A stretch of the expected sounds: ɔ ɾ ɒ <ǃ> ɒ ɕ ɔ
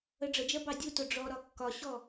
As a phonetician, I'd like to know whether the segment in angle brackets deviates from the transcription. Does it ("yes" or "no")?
yes